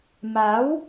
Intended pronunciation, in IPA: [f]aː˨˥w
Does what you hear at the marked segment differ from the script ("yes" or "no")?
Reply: yes